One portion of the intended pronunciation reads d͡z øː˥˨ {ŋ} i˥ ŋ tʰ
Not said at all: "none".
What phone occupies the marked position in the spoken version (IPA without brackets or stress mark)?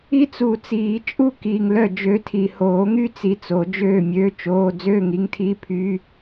ŋ